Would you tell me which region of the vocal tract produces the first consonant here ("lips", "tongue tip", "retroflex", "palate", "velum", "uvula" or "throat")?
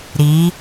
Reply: tongue tip